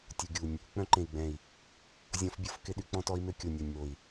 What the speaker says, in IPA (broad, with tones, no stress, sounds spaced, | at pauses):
tʲ u˨ ɡʲ u˨ nʲ | k͡p œ̃˦ ǃ ẽ˨ i̯ ɡ͡b ɛ̃˨ i̯ | zʲ ɔ̃˦ f bʲ o˦ f k ɪ˦ ɗ y˦ k͡p ɔ̃˦ t ɔ˦ i̯ m ø˦ kʲ o˨ nʲ ɔ˨ nʲ m o˨ i̯